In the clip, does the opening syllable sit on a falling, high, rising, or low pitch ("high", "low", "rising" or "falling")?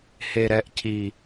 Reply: low